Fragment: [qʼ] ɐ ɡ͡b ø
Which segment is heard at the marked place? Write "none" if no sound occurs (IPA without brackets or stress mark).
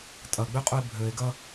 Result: tʼ